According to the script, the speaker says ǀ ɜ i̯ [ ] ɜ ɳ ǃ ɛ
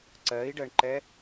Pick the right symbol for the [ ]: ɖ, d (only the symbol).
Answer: ɖ